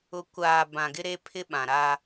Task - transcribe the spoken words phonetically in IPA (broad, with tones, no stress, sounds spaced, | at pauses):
ʊ˨ kʷ aː˨ b ã˨ ɡ ɪ˦ ɾ e˦ pʰ ɪ˦ ɓ ã˨ ɾ a˦